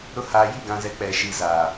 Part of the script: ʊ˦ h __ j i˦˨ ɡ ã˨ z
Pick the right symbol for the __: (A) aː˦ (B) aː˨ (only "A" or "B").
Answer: B